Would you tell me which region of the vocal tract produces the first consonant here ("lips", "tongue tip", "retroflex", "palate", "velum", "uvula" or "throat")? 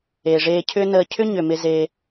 retroflex